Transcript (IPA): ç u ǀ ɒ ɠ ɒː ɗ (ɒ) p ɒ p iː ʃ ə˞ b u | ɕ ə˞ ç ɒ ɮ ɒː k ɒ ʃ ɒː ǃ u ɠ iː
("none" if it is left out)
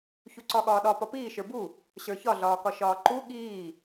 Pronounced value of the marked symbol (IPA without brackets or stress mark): ɒ